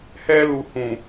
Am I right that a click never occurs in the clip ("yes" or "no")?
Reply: yes